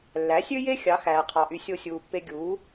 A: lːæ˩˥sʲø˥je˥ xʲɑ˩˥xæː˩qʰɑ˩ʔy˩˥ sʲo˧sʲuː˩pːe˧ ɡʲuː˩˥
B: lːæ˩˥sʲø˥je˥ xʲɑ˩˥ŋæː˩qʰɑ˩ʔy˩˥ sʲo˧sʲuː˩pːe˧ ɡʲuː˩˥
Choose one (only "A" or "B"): A